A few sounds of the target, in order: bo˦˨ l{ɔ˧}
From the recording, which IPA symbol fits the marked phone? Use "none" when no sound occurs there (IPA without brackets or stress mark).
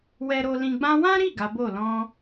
ɔ̃˧